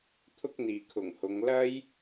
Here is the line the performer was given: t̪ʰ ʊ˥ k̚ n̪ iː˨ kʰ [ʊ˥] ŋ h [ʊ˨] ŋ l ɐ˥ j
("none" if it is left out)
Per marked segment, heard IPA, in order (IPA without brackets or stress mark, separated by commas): ʊ˨˩, ʊ˨˧